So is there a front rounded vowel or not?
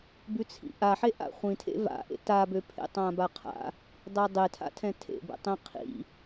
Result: yes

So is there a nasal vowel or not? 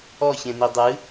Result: yes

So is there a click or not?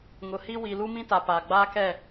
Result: no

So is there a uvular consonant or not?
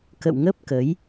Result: no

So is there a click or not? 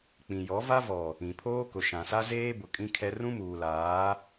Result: no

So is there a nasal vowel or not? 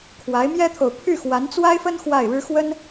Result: no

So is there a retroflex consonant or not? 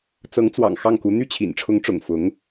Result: yes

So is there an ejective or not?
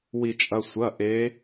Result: yes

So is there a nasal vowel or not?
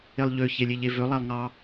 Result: no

